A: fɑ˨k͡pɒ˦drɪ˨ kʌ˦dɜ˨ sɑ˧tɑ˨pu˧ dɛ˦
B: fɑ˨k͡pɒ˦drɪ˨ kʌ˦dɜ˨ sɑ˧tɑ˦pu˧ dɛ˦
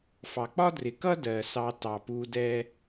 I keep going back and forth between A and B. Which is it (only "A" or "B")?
A